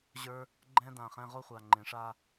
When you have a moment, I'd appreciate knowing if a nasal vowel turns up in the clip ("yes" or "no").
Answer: yes